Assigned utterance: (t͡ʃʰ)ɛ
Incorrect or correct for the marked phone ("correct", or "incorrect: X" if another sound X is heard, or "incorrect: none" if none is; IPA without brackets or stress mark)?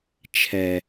correct